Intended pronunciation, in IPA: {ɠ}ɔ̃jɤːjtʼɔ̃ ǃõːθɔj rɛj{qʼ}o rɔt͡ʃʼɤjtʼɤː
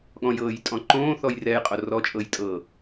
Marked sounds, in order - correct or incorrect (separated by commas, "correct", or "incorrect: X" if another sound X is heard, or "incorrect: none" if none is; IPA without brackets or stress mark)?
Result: correct, correct